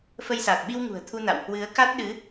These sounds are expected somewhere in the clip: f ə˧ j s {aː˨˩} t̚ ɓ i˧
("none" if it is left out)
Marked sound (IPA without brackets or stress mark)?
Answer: aː˨˩